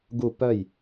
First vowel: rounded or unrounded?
rounded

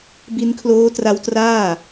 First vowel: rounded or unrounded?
unrounded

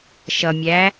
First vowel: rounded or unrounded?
unrounded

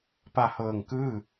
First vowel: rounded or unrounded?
unrounded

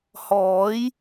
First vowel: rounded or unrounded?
rounded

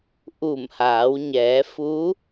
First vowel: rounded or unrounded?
rounded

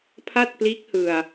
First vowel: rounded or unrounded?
unrounded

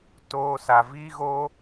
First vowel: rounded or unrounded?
rounded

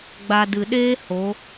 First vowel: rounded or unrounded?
unrounded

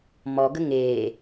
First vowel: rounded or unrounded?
rounded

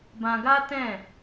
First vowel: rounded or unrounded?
unrounded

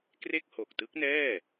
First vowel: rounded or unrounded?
unrounded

